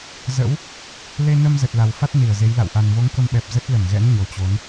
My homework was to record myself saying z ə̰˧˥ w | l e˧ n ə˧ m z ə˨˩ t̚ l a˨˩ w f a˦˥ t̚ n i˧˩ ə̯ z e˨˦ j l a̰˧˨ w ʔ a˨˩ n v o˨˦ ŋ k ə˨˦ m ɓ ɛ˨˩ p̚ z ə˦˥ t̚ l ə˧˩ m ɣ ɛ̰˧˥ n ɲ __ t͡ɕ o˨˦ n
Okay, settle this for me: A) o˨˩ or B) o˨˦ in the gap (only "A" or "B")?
A